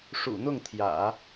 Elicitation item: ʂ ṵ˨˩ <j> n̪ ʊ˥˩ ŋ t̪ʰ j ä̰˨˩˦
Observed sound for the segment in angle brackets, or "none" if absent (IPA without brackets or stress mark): none